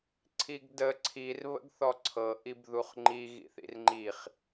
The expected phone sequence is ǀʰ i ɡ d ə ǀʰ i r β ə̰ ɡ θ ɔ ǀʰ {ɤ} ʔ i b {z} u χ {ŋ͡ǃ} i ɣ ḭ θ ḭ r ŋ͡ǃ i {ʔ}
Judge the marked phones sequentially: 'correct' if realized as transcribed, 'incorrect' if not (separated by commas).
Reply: correct, incorrect, correct, incorrect